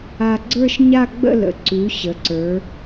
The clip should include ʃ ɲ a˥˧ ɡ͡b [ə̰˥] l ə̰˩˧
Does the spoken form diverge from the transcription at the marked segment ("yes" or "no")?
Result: yes